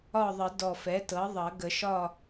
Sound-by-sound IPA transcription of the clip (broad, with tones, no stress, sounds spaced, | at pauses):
ɒ˦˨ ðˤ ə˨˩˦ d ɔ˨˩ f ɛ˩˥ t ɤ˩˥ ðˤ ʌ˨˩˦ ɡ ə˨˩˦ ʃ ɒ˦˨